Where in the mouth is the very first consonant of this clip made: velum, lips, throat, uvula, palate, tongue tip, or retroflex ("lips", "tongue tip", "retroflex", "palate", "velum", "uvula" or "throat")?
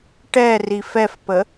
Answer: retroflex